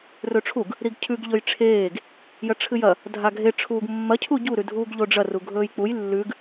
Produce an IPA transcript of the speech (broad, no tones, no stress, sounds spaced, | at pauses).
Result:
r ɵ ʈ͡ʂʰ u ɡ | ɾ i ɡ cʰ ʉ ɡ ʎ ɵ j ʈ͡ʂʰ eː ɡ | j ɐ ʈ͡ʂʰ ɨ j ɐ | dʱ a ɡʱ e ʈ͡ʂʰ uː ɡ mː ɐ cʰ u ɟ u ɾ ʉ dʱ uː ɡ ʎ o ɖ͡ʐ ɐ r u ɡʱ ɵː j k͡p u j lː ʉ ɡ